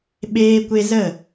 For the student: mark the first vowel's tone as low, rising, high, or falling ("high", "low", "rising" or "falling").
high